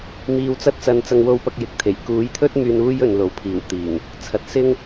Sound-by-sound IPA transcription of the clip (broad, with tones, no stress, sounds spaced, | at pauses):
m iː˧ w t͡s ɐ˥ t̚ t͡s ɐ˧ n t͡s ɐ˧ ŋ w o˧ w p ɐ˧ k̚ j ɪ˨ k̚ t̪ʰ e˨˩ j k uː˨˥ j t̪ʰ ɵ˥ t̚ m yː˧ n uː˥ j ɵ˨ n l o˨ w pʰ iː˨˩ w t̪ iː˨˩ ŋ | t͡sʰ ɐ˨ t̚ s ɪ˥ ŋ